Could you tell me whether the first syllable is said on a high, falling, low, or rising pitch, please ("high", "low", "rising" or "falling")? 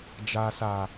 low